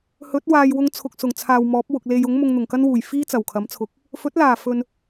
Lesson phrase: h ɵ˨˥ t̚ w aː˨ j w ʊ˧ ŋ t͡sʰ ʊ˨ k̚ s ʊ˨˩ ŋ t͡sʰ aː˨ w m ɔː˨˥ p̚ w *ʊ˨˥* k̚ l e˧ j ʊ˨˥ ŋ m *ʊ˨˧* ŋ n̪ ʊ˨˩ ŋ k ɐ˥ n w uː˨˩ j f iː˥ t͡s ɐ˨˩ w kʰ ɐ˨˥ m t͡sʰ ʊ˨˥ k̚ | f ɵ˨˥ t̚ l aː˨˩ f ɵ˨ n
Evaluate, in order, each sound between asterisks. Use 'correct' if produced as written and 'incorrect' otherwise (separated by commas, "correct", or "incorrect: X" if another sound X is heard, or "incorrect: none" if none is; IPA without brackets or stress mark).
incorrect: ʊ˨, incorrect: ʊ˧